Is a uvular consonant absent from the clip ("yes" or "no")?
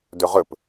no